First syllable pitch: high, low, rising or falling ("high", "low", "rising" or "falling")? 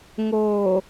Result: low